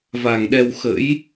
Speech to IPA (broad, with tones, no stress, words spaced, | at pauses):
va˨˩ŋɗɛ˧w xə̰˧˥j